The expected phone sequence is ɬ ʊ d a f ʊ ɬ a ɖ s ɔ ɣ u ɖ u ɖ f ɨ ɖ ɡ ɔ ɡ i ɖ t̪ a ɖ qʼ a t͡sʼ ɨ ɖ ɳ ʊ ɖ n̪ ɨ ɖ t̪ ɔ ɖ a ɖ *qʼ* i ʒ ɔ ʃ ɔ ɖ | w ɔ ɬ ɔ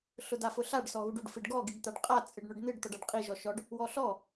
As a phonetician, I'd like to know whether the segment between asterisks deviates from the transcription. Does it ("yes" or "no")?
no